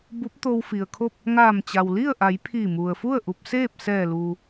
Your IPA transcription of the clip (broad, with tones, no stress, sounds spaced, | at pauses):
b u˧˥ p̚ t̪ o˧ w f i˩ ə̯ kʰ o˥˨ p̚ | ŋ aː˧˩ m t͡ɕ a˩ w l i˥˨ ə̯ ʔ a˩˧ j pʰ iː˧˩ m u˩ ə̯ f u˥˨ ə̯ ʔ u˧ p̚ s eː˥˨ p̚ s ɛː˧˩ l uː˩